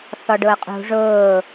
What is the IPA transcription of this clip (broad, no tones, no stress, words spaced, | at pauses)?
θɔɖʊːqʼṳ ʐʊː